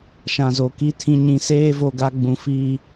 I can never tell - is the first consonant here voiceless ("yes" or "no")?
yes